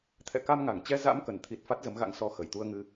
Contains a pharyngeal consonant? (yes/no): no